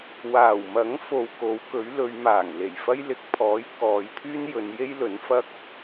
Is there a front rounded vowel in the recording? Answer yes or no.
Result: yes